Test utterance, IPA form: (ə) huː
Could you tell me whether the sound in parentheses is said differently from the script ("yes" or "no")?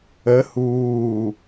no